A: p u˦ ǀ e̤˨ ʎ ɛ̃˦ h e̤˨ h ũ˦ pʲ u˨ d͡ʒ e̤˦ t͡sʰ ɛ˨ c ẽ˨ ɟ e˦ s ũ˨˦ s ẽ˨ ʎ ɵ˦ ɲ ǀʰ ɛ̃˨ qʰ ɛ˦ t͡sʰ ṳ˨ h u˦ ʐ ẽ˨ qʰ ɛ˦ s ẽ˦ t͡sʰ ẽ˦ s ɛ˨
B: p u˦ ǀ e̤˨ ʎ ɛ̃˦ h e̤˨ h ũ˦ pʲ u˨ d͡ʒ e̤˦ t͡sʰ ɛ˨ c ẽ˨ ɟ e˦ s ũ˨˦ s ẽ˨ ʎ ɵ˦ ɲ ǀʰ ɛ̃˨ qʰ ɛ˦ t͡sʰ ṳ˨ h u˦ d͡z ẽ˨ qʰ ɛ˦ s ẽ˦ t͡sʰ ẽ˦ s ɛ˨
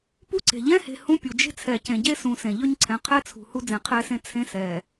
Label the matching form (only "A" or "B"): B